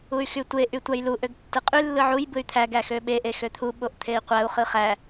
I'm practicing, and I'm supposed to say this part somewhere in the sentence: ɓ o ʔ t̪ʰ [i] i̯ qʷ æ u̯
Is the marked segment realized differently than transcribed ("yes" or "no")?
yes